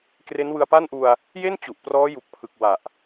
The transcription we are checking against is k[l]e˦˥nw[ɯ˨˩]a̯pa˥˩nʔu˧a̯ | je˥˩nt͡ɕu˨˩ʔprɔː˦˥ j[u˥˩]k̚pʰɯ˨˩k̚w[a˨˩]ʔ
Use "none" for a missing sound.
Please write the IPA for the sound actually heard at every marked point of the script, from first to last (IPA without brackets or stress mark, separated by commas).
r, ɯ˧, u˨˩, a˨˩